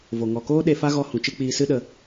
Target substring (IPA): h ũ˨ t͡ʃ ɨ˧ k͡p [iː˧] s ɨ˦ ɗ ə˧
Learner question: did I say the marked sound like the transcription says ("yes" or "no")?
yes